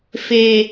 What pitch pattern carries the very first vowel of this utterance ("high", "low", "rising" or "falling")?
high